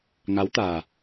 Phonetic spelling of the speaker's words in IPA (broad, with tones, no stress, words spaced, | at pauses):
ŋa˨˦wt̪aː˨˩